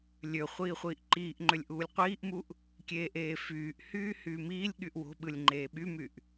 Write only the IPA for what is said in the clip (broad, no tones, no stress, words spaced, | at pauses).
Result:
lʲø χʷiːχʷiːʔǃiːʔŋ͡ǃølʲ ʔuːlʲqʷiːʔmuʔ | kʲeːʔeːfyːʔhyː hyːmiːlʲɠyʔ wo̤ɓɯlʲ ŋ͡ǃeːɓymyʔ